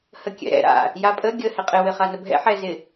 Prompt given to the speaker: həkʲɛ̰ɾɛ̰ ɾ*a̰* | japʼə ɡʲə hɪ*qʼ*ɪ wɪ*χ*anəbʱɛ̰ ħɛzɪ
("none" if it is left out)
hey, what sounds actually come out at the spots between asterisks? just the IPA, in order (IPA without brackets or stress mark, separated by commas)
a̰, qʼ, χ